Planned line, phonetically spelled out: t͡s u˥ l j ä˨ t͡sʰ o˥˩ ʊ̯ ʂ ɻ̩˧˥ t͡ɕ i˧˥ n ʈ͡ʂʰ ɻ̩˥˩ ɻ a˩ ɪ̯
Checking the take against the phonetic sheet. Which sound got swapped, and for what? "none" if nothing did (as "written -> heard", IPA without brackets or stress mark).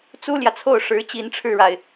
none